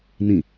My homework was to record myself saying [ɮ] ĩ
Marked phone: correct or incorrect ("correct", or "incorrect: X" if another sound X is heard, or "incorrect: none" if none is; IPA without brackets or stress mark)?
incorrect: n